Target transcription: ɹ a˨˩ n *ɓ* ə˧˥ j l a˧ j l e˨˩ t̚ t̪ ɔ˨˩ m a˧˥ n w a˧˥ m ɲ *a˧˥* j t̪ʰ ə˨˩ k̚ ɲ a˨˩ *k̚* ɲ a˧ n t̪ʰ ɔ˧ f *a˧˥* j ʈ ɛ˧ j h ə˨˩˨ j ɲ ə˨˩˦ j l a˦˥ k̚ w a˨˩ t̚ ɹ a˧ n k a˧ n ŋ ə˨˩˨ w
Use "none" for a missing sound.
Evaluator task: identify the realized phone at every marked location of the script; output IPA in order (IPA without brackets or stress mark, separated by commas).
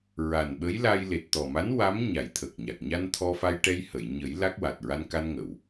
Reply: ɓ, a˨˩˦, k̚, a˧